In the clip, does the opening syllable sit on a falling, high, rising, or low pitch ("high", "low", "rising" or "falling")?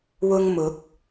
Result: high